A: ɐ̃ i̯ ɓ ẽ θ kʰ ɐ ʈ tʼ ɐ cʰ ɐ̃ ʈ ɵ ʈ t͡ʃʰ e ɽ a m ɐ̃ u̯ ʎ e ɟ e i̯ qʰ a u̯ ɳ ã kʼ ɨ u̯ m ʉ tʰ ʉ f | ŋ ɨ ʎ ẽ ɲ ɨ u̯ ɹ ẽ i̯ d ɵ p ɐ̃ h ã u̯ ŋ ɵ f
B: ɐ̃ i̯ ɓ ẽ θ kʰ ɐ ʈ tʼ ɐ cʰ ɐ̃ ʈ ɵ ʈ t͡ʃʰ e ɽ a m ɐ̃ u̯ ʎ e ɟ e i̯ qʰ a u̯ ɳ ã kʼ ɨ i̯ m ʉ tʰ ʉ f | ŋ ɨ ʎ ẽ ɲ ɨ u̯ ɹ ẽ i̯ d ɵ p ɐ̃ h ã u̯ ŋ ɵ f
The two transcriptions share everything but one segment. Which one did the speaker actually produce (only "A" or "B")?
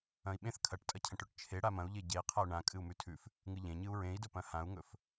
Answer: A